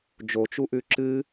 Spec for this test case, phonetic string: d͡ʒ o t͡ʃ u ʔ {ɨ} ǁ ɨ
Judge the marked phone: incorrect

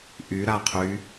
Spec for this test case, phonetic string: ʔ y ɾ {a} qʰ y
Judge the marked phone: correct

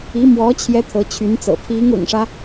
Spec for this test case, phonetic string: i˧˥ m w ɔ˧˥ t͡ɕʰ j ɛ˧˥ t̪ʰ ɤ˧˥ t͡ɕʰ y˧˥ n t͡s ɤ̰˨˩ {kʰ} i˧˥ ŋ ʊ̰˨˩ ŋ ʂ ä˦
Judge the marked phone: incorrect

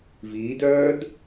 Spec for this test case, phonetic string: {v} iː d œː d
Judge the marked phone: correct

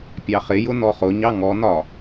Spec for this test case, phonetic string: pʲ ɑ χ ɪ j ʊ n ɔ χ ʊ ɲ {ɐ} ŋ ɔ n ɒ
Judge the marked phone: incorrect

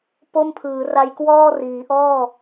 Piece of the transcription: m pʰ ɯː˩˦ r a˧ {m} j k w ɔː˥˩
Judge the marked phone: incorrect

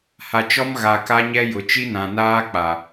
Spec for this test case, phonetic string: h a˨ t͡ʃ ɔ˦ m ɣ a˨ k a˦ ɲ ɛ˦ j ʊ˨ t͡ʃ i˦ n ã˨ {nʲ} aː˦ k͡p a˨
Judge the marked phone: incorrect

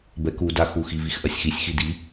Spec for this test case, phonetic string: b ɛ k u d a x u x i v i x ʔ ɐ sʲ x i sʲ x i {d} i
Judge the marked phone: correct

